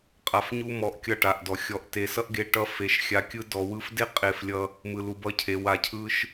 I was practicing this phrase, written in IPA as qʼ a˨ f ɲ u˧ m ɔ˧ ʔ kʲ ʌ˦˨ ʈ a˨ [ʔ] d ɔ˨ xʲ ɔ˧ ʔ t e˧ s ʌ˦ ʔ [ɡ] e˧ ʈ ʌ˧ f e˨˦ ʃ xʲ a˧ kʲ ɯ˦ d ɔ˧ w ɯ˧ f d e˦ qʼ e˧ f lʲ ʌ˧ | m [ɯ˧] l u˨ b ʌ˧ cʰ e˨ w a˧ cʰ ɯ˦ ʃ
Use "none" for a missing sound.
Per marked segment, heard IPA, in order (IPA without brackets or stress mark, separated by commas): ʔ, ɡ, ɯ˨